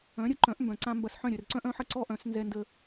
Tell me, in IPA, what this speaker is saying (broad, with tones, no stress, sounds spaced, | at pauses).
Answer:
œ̃˩˥ ɾʲ ə˩˥ ǃ œ̃˩˥ ʔ m b œ̃˩ ǀ ã˧ m b ɐ˧ s ħ œ̃˥˩ ɾʲ œ˩ r ǀ œ̃˥ ʔ œ̃˩˥ ħ ɐ˧ ǀ ɔ˥ ʔ œ̃˩˥ s n z ɛ˧ n d ə˧